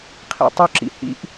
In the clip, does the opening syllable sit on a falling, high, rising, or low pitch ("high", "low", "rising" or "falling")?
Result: low